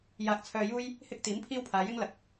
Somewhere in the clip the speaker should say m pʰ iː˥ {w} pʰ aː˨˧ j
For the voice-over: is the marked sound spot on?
yes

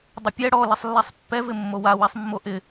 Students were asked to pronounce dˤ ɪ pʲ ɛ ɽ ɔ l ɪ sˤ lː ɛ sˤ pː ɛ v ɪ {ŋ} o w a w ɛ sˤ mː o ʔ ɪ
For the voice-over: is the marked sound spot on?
no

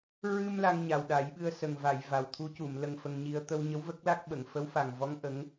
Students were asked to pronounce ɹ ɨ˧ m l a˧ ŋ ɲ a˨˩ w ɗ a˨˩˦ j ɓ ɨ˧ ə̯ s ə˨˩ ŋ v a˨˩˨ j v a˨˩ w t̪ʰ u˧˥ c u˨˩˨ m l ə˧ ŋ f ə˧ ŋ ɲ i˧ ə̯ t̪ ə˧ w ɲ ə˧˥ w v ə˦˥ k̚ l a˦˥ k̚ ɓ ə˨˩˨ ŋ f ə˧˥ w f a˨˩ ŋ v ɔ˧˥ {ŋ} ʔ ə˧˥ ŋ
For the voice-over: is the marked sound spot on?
yes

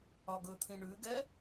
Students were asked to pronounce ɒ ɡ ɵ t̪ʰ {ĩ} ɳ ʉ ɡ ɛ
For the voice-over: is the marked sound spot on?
yes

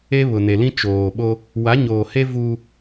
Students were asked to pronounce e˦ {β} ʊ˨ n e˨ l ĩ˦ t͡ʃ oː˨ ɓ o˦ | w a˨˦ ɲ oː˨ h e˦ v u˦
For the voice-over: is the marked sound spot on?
yes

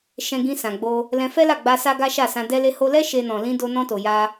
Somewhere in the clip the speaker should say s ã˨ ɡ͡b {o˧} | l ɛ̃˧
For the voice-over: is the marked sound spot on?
yes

